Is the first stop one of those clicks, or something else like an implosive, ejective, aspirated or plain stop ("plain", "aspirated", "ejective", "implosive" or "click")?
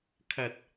aspirated